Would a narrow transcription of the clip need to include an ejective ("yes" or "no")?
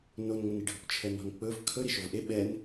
no